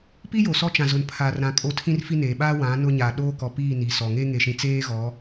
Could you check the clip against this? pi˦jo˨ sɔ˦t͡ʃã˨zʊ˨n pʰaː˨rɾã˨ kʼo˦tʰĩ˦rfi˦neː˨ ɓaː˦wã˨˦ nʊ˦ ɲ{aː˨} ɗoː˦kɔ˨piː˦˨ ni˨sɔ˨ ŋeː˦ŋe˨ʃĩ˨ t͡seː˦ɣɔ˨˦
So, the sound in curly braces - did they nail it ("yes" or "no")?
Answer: yes